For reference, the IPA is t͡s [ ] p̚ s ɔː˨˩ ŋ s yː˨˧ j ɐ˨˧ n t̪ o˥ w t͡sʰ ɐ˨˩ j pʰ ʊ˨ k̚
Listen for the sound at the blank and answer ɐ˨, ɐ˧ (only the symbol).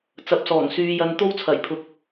ɐ˨